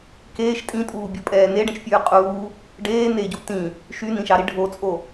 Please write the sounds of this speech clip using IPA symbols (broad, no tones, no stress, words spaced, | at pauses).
keːʃ tʼĩtʼuːbʲopʼɛː neɖɛ̃ʃfʲʉː qʼuː | ɖeː neɟu tĩ | ʃynĩʃɑɾi ɖʱot͡sʼo